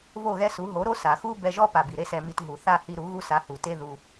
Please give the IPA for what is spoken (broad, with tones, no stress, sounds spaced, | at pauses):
v o˦˨ ɣ ɛ˦ s u˨˦ ɦ o˨˦ ɾ o˦ s a˨ x u˦ b ɛ˧ ʒ ɔ˦ p a˨ b i˨ ɾ e˦ s ɛ˧ m i˧ t ɦ u˨ θ a˦˨ h i˧ ɾ u˨˦ ɣ u˦ s a˧ h u˨ t e˦ ð u˧